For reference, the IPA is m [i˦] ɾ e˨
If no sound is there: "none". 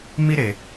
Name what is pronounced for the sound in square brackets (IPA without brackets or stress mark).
i˦